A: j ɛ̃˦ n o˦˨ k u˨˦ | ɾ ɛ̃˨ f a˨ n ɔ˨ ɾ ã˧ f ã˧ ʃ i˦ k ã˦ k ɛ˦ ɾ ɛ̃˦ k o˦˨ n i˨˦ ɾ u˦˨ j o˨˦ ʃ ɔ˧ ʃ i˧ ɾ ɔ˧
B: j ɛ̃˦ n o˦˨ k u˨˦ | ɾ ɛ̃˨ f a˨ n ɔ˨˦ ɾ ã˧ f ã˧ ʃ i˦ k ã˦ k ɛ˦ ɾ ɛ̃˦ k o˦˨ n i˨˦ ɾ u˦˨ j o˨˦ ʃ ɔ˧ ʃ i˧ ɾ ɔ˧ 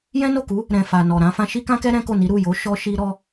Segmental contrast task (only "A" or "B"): A